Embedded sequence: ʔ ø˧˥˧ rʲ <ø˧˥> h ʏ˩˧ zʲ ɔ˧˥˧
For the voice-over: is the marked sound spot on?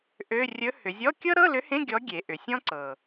no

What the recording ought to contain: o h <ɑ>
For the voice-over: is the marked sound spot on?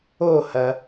no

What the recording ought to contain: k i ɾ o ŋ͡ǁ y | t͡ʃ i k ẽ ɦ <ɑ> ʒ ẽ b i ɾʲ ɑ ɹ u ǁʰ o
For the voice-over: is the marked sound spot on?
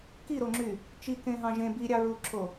no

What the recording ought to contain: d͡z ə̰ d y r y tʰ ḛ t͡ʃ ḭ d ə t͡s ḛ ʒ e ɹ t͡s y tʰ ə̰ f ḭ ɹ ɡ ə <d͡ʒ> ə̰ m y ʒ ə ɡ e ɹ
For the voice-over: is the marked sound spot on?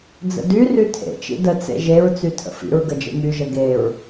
yes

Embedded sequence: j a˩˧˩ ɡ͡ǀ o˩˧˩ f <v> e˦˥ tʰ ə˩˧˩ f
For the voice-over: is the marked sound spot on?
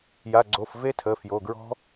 yes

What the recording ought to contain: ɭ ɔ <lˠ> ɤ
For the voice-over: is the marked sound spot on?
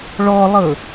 yes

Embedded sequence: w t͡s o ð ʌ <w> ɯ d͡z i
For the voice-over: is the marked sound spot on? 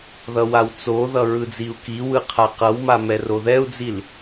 no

